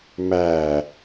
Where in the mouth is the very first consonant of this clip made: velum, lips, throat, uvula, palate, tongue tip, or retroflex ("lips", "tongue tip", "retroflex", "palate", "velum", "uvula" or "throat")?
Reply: lips